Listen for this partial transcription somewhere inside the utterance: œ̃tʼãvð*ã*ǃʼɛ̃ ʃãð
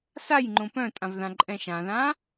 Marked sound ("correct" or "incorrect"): correct